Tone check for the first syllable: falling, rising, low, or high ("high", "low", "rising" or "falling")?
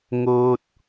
falling